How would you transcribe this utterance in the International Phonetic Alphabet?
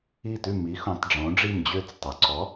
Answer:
i˥˩ t ʉ˥˩ m i˩˥ x õ˩˥ tˤ ɖ͡ʐ õ˩˥ ɖ͡ʐ i˥˩ m d͡ʑ ø˥˩ t͡s tˤ o˩ ǀ ɔ˩˥

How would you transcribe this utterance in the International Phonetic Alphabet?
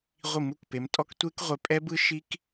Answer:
ʁʷ i˧˩˧ m u˩˧ k p e˩˧ m tʼ ɔ˦˥ k tʷ e˦˥ k ʁʷ ɛ˧ pʼ ɛ˦˥ b ɯ˦˥ ʃ i˦˥ k

